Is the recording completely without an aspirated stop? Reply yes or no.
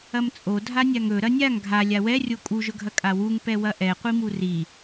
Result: yes